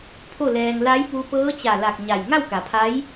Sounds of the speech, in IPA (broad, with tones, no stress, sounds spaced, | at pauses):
pʰ o˥˨ l ɛː˧ ŋ l a˧˥ j p u˧ p ɤː˧˥ t͡ɕ a˧˩ l a˧˩ k̚ ɲ a˧˩ j ŋ a˥˨ w k a˩˧ pʰ a˧˥ j